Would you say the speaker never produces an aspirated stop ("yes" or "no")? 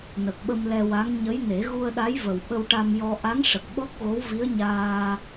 yes